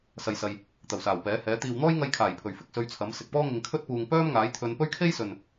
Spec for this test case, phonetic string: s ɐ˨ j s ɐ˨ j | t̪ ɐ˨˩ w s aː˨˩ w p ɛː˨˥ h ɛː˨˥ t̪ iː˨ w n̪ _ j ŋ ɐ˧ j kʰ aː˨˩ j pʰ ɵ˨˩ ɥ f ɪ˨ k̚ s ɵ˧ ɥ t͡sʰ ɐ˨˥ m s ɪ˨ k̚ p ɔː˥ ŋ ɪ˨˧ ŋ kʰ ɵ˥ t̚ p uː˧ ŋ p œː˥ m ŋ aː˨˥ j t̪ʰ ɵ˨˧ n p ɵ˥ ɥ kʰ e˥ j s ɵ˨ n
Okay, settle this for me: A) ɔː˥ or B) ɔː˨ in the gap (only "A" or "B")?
A